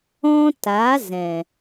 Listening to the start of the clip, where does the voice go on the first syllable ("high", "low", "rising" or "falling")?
high